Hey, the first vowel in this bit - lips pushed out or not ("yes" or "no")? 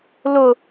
yes